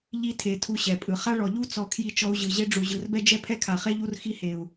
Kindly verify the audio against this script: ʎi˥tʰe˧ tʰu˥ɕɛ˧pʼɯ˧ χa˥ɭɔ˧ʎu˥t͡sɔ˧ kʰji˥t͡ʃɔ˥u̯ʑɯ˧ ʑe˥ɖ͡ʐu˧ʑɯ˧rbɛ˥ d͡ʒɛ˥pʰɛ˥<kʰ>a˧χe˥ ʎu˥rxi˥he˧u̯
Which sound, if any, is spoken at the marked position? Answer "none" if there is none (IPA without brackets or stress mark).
kʰ